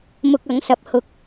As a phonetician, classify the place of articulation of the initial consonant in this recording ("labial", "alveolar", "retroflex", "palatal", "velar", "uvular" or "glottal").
labial